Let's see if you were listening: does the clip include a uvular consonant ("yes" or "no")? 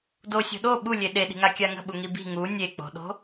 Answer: no